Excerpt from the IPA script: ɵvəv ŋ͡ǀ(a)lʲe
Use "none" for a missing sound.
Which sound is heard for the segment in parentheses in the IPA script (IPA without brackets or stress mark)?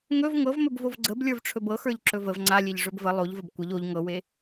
a